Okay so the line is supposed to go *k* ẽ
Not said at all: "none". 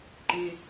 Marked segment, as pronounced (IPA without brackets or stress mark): ǃ